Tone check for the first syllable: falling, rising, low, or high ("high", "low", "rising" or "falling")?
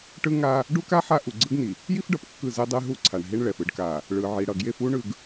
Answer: high